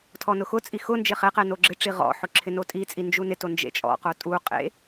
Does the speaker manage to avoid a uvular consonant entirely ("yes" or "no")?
no